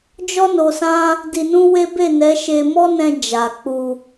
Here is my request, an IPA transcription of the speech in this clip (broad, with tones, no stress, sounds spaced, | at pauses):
d͡ʒ ɔ˦ n o˧ s ã˦ | d i˧ n ũ˦ w e˦ b e˦˨ n ɛ˨˦ ʃ e˧ m ɔ˦ n ɛ̃˧ d͡ʒ a˨ k͡p u˧